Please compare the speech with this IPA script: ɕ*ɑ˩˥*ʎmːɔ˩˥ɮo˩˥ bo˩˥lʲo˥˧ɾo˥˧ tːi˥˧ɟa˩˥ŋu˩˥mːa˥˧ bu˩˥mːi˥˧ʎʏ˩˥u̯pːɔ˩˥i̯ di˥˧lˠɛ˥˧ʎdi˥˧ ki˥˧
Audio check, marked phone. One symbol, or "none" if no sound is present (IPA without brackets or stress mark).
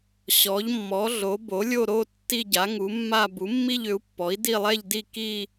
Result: ɔ˩˥